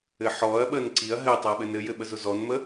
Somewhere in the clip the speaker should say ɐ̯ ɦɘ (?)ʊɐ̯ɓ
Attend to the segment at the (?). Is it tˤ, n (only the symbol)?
tˤ